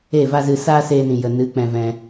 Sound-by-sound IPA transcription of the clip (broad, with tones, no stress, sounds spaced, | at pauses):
e˦˨ v a˦ z ɨ˧ s aː˦ s eː˧ n ĩ˨ j ə˨ n ɨ˨˦ k͡p ɛ̃˧ v ɛ̃˧